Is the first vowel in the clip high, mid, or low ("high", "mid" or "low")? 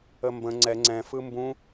mid